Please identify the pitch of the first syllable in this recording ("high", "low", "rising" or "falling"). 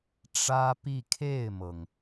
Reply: high